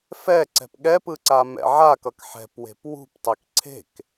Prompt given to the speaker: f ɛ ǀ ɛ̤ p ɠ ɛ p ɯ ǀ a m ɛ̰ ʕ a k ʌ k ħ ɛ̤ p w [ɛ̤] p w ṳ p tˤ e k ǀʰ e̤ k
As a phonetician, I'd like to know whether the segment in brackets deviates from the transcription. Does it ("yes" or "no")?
yes